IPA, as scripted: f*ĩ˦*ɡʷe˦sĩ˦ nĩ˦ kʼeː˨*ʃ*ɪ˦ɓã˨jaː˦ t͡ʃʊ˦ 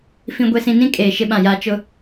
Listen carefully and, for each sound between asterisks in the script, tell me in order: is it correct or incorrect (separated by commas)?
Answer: correct, correct